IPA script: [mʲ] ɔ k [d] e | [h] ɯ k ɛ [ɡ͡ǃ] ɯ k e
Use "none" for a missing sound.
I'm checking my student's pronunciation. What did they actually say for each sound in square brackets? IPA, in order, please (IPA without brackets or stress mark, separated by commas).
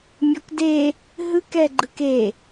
mʲ, d, ɦ, ɡ͡ǃ